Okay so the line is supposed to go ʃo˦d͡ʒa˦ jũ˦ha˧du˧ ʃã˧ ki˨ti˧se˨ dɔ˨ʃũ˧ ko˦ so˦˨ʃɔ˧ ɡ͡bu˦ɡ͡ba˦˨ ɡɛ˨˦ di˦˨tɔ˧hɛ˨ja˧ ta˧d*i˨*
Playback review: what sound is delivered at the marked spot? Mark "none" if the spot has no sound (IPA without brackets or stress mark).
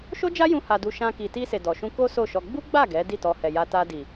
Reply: i˨